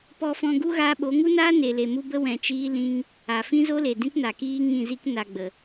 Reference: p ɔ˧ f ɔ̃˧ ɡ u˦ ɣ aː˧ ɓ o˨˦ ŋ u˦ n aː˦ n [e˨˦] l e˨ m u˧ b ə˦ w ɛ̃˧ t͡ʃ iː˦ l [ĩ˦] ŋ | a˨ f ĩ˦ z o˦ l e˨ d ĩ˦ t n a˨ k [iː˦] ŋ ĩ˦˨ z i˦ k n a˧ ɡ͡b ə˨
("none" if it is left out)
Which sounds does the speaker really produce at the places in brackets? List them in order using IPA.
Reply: e˨, ĩ˦, iː˦

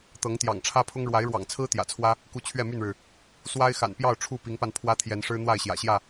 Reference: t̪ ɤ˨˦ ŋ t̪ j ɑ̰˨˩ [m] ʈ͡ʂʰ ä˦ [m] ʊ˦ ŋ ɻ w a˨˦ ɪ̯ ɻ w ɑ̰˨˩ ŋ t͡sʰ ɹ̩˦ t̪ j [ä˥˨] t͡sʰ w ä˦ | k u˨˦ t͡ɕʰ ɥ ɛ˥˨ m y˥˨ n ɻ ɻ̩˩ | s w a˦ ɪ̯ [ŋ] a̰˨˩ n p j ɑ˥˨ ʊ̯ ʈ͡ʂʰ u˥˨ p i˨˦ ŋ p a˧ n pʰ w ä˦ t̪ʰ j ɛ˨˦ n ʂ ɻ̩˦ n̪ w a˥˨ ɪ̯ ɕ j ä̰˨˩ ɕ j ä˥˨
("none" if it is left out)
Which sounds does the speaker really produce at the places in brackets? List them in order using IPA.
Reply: ŋ, pʰ, ä̰˨˩, x

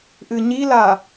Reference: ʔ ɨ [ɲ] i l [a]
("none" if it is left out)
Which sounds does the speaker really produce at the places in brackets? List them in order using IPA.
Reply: ɲ, a

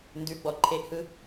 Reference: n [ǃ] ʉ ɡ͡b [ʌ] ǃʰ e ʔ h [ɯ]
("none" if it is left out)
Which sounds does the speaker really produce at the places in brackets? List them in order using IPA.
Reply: d, ɔ, ɯ

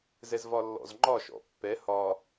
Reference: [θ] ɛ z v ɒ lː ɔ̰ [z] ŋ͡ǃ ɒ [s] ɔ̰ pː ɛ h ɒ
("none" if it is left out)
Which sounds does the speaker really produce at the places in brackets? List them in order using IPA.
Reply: z, z, ʃ

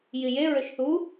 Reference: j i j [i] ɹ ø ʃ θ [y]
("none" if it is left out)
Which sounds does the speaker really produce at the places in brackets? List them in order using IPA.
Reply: e, u

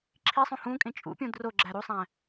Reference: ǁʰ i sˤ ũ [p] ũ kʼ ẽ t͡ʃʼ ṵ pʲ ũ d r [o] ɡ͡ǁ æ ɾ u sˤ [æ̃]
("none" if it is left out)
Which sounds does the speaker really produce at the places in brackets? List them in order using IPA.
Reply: h, o, æ̃

